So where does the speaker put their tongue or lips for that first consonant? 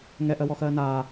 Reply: velum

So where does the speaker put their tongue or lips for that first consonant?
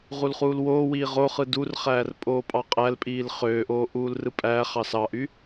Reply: uvula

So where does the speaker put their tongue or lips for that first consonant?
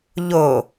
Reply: palate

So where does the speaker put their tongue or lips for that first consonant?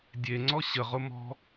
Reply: tongue tip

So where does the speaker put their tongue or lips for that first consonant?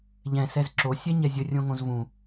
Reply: palate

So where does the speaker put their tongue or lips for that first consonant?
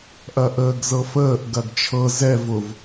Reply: throat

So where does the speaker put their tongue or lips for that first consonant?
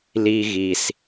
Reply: tongue tip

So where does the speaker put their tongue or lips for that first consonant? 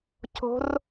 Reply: palate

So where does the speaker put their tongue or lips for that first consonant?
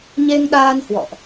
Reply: palate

